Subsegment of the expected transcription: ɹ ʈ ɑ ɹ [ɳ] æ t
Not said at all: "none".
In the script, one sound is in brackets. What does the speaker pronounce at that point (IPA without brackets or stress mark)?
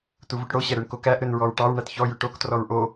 ɳ